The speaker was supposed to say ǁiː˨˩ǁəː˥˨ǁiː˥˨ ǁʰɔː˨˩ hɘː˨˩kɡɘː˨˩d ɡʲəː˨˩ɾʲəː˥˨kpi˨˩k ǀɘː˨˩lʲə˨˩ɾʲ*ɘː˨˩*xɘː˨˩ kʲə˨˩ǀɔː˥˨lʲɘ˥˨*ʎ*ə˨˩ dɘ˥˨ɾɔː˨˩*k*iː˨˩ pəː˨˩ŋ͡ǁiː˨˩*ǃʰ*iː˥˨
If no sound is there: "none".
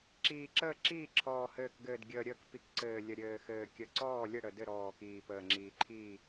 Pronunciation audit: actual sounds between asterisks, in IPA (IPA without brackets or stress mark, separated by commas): ɘː˨˩, ɽ, k, ǃʰ